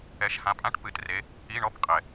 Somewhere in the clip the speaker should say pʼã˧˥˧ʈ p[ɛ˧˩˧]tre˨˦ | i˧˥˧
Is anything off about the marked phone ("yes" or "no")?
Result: yes